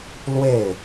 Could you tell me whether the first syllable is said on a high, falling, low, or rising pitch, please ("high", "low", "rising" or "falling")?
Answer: falling